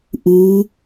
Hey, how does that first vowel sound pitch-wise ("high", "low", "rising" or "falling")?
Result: rising